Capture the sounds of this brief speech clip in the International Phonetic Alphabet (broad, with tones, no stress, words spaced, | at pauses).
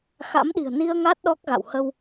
xa̰˧˥mɗi̤˨˩ə̯ ni˧ə̯ ŋa˦˥t̚ ɗɔ˦˥k̚ɣa̰˧˨w hə˧w